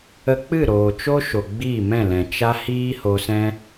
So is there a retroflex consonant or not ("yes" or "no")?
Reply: no